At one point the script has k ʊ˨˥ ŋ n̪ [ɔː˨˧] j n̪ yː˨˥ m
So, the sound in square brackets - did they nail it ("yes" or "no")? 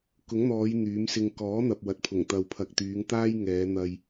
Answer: yes